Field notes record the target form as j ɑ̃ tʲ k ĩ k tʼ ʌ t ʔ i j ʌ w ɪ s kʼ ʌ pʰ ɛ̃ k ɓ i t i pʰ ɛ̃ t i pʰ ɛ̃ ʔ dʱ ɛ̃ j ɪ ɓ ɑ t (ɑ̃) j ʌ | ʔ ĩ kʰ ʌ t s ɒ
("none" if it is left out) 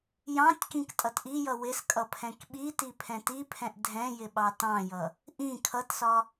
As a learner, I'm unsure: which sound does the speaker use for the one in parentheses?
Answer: ɑ̃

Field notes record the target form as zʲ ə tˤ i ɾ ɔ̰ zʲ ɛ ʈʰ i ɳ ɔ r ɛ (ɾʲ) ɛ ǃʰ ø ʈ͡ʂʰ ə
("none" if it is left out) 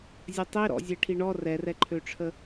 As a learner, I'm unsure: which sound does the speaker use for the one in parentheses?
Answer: r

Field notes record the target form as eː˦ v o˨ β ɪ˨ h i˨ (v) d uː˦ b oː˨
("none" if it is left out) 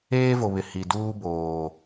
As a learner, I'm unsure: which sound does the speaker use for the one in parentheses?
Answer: none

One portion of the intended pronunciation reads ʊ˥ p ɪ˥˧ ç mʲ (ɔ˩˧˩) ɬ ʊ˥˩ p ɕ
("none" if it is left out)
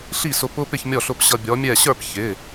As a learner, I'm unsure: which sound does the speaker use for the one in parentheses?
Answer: ɔ˥˩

